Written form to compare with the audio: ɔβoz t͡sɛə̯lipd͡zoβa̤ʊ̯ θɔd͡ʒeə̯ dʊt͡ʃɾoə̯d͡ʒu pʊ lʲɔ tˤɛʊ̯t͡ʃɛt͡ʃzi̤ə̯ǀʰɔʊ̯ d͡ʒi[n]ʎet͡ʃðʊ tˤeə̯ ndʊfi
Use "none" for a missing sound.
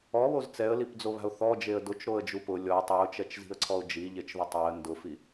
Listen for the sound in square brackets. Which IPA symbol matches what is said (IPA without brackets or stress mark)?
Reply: none